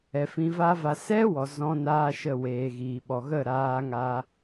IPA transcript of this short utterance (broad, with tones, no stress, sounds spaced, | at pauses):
ɛ˨ f ĩ˧ v a˦ v a˧ s ɛ˦ w ɔ˨ z ɔ̃˧ n aː˧ ʃ ə˦˨ w eː˨ ɣ iː˨ ɓ ɔ˨ ɣ ə˦˨ ɾ aː˧ ŋ a˧